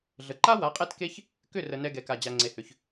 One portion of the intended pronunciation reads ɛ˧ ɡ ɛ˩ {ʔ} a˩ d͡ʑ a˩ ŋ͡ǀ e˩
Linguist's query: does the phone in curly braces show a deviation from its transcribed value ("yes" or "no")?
yes